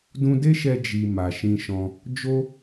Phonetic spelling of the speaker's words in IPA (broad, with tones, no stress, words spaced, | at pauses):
dũ˧de˦ʃɛ˧ d͡ʒi˨ ma˨ʃĩ˧ʃɔ̃˧ | d͡ʒo˦